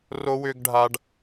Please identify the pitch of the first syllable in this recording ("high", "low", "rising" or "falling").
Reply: high